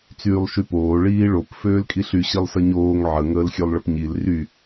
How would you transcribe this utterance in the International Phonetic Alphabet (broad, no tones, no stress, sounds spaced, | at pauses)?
t͡s yː lˠ ʃ y p oː ɭ iː ɭ o p f øː l kʼ i ɬ y ɕ i lˠ s ə ɲ oː ŋ ʕ ə ŋ əː l xʲ ø lˠ ɭ ə p ɲ i l r y